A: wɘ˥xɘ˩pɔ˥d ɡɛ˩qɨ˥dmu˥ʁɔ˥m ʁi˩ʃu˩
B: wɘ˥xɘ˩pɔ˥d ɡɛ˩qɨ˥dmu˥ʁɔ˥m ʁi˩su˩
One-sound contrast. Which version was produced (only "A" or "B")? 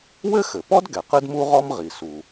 B